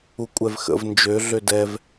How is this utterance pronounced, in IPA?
u kʷʼ ɛ v x ə̰ v n d͡ʒ ø ɮ ø d ɛ v

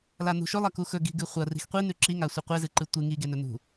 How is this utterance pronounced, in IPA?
l a n ṳ ʃ ɵ lˠ ɐ k u x ɵ ɡ i̤ ɡ ɨ χʷ ɐ r i̤ x qʷ i n ʉ ǁ i ŋ a sʷ i qʷ e z ɨ ǃ ɨ tʷ ɨ ŋ i ɡ e n ɵ n ṳ

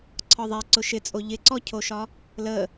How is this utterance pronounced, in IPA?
ǀʰ ɒ ðˤ ɛ ǀ ʊ ʃ ɪ t͡sʼ o ʎ ɪ ǀ ɔ cʰ o ʃ ɒ | l ə

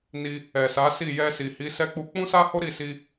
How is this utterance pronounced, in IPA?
n i˧ | ɛ˨ s a˨˦ s i˦˨ j ɛ˧ s i˨ h i˨˦ s ɛ˦ k͡p u˧ k͡p ũ˦ s a˦ h o˦ ɾ i˦˨ s i˧

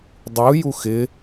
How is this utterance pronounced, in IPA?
dˤ u j u x ɪ

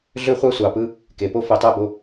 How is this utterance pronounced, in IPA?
ɮ ø˦ χʷ ɑ˦ sʷ ɑ˨ p ɯ˦ | k e˨ p o˦ f e˧ tˤ æ˦ b o˧

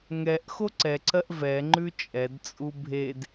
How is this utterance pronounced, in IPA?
ŋ ɛ ʔ x o ǀ ɛ ǀ ɜ ʔ v ɛ ŋ͡ǃ ʉ t͡ʃʼ ɛ d t͡sʼ u bʱ e d

